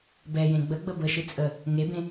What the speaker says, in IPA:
b ɛ j ẽ ɡ͡b ə ɡ͡b ə b ə ʃ ɨ t͡sʼ ə | ŋ e b ẽ

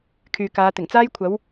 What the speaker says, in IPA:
kʰ yː˨ k aː˨˧ t̪ ɪ˨˩ ŋ t͡s aː˥ j kʷʰ ɐ˨˥ w

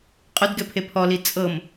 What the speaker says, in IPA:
qʼ ʊ d ɡ ɛ pʰ e pʰ ɔ l i t͡sʼ ɤ m

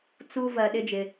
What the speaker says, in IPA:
t͡s u˦ v ɜ˧ ɗ ɪ˦ d͡ʒ ɪ˧

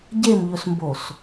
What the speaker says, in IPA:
ɟ e m ʎ ɵ s m b o s

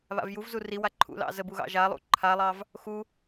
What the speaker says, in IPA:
β a̰ v j u v z u r i w a ǃʰ ṵ l ɑ̰ z ə b u ɣ ɑ̰ ʒ a lˠ ṵ ǃʰ a lˠ ɑ v | x u

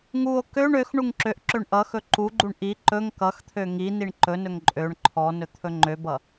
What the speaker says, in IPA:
ŋ u o̯ k ø ɳ ø x ɳ u ŋ ǁ ø ʔ ǁ ø ɳ ʔ ʌ x ɵ ǃ u ɡ͡ǃ u ɳ ʔ i ǃ ɵ ŋ k ʌ x t̪ʰ ø ŋ i n i ɳ ǃ ɵ n ɵ ŋ ǃʼ ø ɳ ǃʰ ɔ n ɵ t̪ʰ ɵ ŋ͡ǃ ø b ʌ

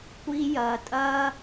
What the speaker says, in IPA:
kʷ iː˦ j ɐː˧ tʼ ɐː˦

